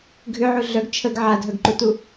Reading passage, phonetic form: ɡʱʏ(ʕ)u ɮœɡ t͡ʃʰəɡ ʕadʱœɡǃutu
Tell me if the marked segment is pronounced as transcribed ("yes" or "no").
yes